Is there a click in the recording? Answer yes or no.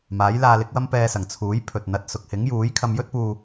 no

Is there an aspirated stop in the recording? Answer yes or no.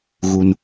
no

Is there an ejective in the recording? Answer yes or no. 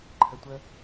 no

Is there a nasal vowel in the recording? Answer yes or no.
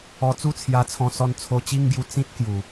yes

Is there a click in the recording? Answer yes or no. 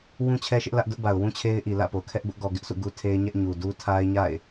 no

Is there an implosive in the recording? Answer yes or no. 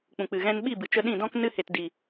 yes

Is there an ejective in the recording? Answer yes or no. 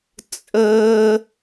yes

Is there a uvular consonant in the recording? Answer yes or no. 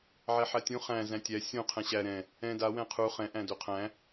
yes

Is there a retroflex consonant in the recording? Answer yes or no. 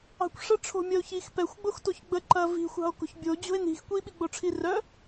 yes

